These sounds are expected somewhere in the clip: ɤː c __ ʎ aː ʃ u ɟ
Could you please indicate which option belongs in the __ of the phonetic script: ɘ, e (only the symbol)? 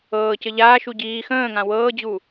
ɘ